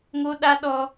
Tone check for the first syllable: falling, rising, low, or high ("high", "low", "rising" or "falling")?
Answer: high